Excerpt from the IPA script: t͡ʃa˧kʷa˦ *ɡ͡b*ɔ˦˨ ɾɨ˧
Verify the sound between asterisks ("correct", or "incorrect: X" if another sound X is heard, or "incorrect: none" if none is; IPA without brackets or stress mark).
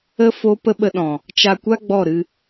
correct